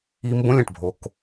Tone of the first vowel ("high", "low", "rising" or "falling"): high